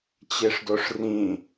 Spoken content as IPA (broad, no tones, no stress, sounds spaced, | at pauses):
t͡ɕ e ʂ d o ʂ r ĩ